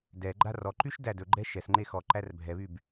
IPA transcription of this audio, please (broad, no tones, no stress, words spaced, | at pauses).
dɛɡ͡ǃa rɔǃyʃ dædɵɡ͡ǃɛ ʃɛsŋ͡ǃe xɔǃær bʱɛβyb